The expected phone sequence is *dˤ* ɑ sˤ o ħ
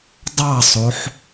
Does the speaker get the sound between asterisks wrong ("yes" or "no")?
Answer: no